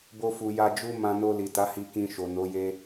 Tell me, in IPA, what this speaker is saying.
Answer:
b o˧ f u˨ j a˧ d͡ʒ u˦ m ã˧ n o˧ l i˨ t a˨˦ h i˧ k ĩ˧ ʃ o˨ n o˨˦ j e˦

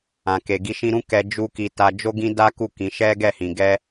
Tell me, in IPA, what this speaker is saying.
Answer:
ã˨ k e˨ ɡ i˧ ʃ ĩ˧ ɾ ũ˦ k ɛ˧ d͡ʒ u˧ k i˧ t a˧ d͡ʒ o˦ ɡ ĩ˦ d a˦ k u˦˨ k ĩ˨˦ ʃ ɛ˦ ɡ ɛ˦˨ h ĩ˨ ɡ ɛ˧

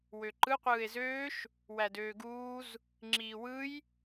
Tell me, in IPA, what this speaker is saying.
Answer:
w ø ǃ ɯ qʷ ɯː e̯ z øː ʃ | w æ d øː ɡ uː z | ŋ͡ǁ iː w ɯ j

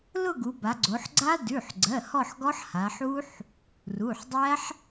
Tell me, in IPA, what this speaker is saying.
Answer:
l ʊ˥˧ ɡ u˩˧ b a˩˧ ɡ͡ǀ o˩˧ ħ ɡ͡ǀ a˦˥ d ʉ˩˧˩ ħ ɡ͡ǀ ɜ˩˧˩ h ɔ˥˧ ħ ɡ ɔ˦˥ ħ h a˩˧ ħ u˦˥ ħ | r u˩˧˩ ħ dˤ æ˦˥ ħ

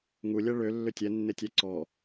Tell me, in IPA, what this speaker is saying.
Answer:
ŋ u lʲ ɛ ɭ ø lː ʏ tʲ ɛ nː e tʲ ɛ ǀ ɔ

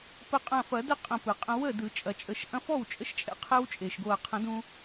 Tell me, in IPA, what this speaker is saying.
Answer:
p ə˧˩ qʼ ɐ̃˧˩ f ɐ˨˩˦ d ə˥˩ qʼ ə̃˧˩ p ɯ˩ qʼ ə̃˧ w ə˥˩ d ɯ˨˩˦ t͡ʃʼ ɐ˨˩˦ t͡ʃʼ ə˧˩ ʃ ʔ ɐ̃˧ f ɔ˥˩ w t͡ʃʼ ə˧ ʃ t͡ʃʼ ɛ̰˧ qʰ ɛ˦˥ w t͡ʃʼ e˩ ʃ ɡ o˧˩ ɐ̯ qʰ ə̃˨˩˦ d ũ˧

